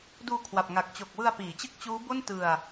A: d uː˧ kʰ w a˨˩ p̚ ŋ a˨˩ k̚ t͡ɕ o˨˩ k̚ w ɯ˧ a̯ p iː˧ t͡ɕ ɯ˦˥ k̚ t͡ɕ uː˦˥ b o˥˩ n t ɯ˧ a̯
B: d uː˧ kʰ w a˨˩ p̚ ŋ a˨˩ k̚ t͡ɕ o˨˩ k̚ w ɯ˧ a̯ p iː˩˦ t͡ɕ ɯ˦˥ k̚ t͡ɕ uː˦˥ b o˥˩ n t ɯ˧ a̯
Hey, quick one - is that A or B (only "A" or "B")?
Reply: B